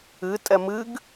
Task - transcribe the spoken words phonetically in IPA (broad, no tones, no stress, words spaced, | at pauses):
ɨtʼɛ mɨɡ